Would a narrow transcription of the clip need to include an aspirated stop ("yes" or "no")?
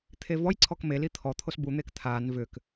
yes